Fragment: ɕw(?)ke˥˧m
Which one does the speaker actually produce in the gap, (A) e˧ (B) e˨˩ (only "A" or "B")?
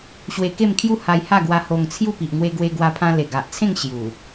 A